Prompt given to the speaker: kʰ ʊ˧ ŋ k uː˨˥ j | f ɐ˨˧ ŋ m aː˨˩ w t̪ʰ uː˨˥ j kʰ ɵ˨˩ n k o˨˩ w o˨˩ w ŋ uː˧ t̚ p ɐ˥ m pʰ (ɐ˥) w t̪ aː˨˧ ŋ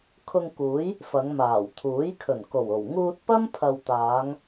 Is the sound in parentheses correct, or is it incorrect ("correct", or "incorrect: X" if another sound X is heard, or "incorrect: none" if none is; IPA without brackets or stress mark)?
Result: incorrect: ɐ˨